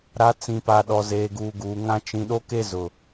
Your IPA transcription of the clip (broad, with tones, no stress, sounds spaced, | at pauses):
ɾ a˨˦ t͡s ĩ˨ p a˨ ɗ ɔ˨ z eː˨ ɡ uː˨ ɡ uː˨ ŋ ã˦ t͡ʃ ĩ˨ ɗ o˦ k e˦ z ʊ˨